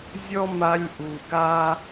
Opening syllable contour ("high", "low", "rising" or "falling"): high